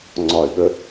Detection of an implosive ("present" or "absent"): present